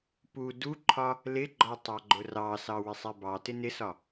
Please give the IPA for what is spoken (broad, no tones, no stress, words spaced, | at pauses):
pu duǃʰɒ | lɪɡ͡ǃɒ tˤɑɡ͡ǃʊrɑsɑ wɪsˤɛbɑtɪ nɪsɒ